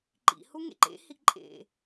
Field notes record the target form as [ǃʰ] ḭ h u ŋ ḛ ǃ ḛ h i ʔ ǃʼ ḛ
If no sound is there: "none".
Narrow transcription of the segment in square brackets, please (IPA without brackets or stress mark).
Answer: ǃ